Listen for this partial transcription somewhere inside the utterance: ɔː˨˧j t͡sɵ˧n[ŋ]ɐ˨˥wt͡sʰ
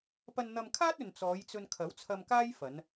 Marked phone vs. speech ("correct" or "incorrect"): incorrect